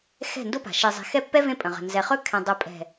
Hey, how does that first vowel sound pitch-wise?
falling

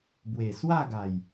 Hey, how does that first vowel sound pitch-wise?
low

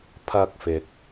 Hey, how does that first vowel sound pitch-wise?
high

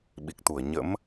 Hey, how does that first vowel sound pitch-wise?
low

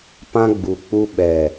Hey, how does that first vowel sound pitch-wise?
high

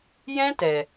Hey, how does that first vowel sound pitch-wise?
high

